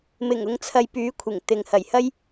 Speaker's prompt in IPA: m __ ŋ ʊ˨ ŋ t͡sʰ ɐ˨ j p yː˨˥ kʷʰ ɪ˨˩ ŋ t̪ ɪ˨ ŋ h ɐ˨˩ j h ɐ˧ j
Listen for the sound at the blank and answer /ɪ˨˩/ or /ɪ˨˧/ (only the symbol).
ɪ˨˩